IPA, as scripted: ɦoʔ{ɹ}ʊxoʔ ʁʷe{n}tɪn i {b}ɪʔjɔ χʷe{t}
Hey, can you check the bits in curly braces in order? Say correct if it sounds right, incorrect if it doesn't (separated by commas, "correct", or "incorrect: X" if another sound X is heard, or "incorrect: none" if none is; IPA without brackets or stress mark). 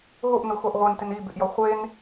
incorrect: n, correct, correct, incorrect: n